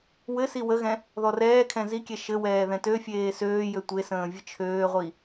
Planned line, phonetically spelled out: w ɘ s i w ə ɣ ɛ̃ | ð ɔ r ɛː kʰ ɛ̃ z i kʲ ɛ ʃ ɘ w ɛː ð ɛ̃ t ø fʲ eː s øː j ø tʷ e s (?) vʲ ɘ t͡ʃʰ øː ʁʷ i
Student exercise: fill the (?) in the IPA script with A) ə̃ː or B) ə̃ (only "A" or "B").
A